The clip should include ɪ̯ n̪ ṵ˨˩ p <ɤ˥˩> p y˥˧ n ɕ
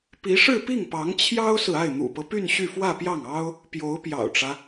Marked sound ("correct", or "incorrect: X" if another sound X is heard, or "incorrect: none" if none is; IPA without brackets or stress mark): incorrect: ɤ˦